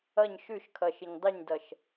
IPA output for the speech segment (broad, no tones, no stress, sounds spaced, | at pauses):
ʌ ɲ ʃ ʉ ʃ kʰ ʌ ʃ ɪ ɲ dˤ ɪ ɲ d ʌ ʃ